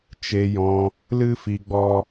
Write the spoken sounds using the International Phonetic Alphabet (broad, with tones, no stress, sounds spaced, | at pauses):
t͡ʃ e˧ j ɔ̃˧ | l ɨ˦ f i˧ ɡ͡b ɔ˦